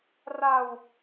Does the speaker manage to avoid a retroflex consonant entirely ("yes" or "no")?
yes